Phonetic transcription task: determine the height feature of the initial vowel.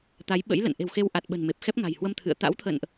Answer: low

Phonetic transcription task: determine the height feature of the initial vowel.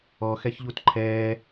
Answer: mid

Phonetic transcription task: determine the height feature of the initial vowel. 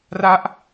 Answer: low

